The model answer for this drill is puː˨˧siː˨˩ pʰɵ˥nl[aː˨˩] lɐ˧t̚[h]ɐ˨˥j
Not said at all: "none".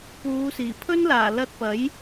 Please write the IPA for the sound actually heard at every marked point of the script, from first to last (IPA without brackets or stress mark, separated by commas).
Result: aː˨˩, p